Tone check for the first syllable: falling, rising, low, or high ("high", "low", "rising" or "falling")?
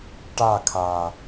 falling